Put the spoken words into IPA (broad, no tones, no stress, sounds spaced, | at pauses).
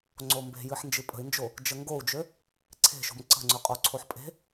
ŋ͡ǀ o m b e̤ j ɨ ħ n d͡ʒ ɨ pʼ ə̤ i̯ n d͡ʒ o | d͡ʒ ə ŋ ɡ o u̯ d͡ʒ ø | ǀʰ e̤ ʃ o̤ m ǀ ə̤ ŋ͡ǀ ø qʼ o ǀʰ o ħ pʼ e̤